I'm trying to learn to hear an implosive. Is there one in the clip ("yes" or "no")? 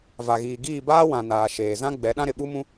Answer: yes